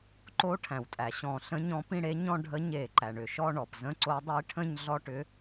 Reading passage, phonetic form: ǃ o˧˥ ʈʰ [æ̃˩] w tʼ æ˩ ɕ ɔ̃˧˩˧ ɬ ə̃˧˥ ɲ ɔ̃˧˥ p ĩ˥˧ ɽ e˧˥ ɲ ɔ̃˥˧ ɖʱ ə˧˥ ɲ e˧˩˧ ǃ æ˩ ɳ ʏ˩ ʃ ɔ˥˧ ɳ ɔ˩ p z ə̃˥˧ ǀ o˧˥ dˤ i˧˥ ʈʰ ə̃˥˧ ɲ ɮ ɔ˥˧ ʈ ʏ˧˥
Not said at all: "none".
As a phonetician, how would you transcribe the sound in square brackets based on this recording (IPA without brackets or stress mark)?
æ̃˩